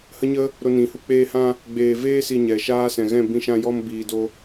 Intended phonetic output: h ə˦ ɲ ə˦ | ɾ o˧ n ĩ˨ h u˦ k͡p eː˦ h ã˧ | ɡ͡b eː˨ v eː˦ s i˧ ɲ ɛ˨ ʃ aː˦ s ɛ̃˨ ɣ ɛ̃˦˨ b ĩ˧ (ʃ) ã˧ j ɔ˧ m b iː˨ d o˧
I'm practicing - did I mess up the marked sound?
no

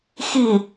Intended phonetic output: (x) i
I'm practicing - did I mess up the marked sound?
no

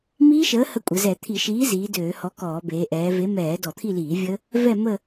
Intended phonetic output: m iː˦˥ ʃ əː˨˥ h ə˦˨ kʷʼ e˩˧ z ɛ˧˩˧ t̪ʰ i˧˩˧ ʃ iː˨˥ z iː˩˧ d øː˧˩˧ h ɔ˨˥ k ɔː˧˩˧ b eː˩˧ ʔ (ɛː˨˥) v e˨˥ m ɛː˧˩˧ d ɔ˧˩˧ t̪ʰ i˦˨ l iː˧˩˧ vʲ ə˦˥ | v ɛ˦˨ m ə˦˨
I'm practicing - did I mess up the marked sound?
yes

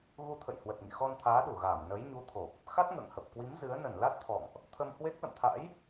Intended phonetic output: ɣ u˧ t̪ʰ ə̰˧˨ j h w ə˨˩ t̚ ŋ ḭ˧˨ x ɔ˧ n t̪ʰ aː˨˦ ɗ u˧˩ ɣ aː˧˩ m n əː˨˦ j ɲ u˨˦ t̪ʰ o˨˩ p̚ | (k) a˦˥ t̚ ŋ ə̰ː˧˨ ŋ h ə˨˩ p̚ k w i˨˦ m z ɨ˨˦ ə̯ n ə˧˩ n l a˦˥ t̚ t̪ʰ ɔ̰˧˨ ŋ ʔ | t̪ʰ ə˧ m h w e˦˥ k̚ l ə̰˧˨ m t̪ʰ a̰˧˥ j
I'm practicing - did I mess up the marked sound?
yes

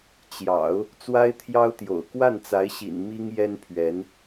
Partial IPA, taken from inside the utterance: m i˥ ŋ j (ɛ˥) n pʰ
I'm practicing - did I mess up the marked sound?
no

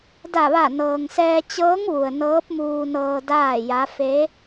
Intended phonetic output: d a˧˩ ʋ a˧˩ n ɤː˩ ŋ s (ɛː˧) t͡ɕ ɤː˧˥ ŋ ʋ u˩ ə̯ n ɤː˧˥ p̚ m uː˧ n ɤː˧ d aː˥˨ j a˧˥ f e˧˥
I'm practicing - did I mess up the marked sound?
no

